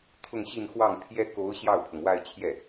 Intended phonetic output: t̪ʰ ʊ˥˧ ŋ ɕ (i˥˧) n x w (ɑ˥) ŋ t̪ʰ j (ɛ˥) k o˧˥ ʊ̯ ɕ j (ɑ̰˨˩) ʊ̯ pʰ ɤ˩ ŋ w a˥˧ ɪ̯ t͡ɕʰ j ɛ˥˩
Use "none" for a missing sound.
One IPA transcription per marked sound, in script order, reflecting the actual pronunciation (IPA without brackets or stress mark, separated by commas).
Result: i˥˧, ɑ˥˩, ɛ˥, ɑ˥˩